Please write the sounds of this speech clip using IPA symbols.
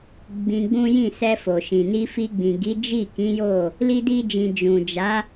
ɡ͡b ĩ˧ ɡ͡b ũ˦ j ĩ˦˨ s ɛ˧ f o˨ ʃ ĩ˨ n i˧ f i˧ ɡ͡b ĩ˨ ɡ i˨˦ d͡ʒ i˦˨ k ĩ˨˦ j o˦˨ | l i˦ d i˦ d͡ʒ ĩ˧ d͡ʒ ũ˨ d͡ʒ a˨˦

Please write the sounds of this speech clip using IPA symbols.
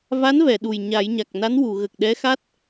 v a˧˥ n v ɛ˨˩˨ ɗ u˨˩ j ɲ a˨˩˦ j ɲ a˨˩ k̚ n a˧˥ n w u˨˩˨ ɣ ə˨˩ k̚ ɗ ɛ˧˥ x a˦˥ t̚

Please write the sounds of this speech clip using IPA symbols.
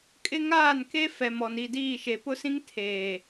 kʼ ɪ˦ ŋ aː˦˨ n k e˦ f ɛ˨ m ɔ˨ n i˦˨ d iː˦˨ ʃ e˨ p ʊ˦ s ĩ˦ ŋ tʰ eː˨

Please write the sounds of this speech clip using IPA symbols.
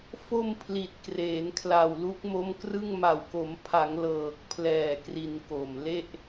f o˧ m pʰ l i˨˩ t̚ k r eː˩˦ n kʰ l a˨˩ w l u˦˥ k̚ m o˦˥ m k r ɯ˥˩ ŋ m a˨˩ w k o˩˦ m pʰ a˩˦ ŋ l ɤː˨˩ k̚ pʰ l ɛː˨˩ k r i˧ n k o˨˩ m l e˥˩ ʔ

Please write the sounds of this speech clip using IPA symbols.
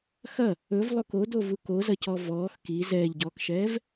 x ɐ | ɵ v lˠ o k o d o v u k o z ɐ c ɔ v ɔː x k i z ɛː ʎ ɟ ɔː k ʃ ɛː v

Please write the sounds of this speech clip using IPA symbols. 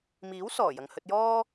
m iː˨˥ w s ɔː˨˩ j ɐ˨ ŋ h ɵ˧ t̚ j ɔː˥

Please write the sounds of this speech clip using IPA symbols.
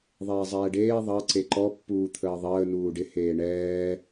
ðˤ eː zˤ ɛː ɖ eː ðˤ ɑ ǀ e ǃ ɔ pː uː t̪ʰ əː ðˤ əː n uː ɖ ɪ h eː ɳ ɛː

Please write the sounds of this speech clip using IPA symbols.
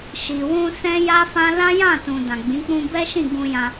ʃ i˨ w ũ˧ s ɛ̃˦ j a˦ f ã˦ l ã˦ j ã˦˨ t ũ˨ d ã˨ ɡ͡b ĩ˨˦ k͡p ũ˧ b ɛ˦ ʃ ĩ˦˨ ɡ ũ˧ j ã˧

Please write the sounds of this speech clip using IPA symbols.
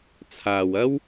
t͡sʰ aː˨ w ɐ˥ w

